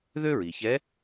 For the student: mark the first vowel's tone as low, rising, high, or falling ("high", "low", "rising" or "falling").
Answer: high